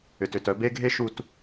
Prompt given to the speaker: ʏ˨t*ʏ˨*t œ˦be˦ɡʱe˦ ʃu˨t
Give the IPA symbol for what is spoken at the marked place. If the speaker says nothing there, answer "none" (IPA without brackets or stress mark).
ʏ˨